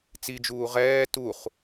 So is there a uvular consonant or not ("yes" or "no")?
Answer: yes